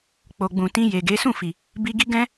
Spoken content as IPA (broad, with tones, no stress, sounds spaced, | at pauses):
k͡p o˨ ɡ͡b ũ˨ t ĩ˧ j e˨ ɡ e˨˦ s ũ˦˨ f i˨ | b i˧ ɡ i˦ ɡ ɛ̃˦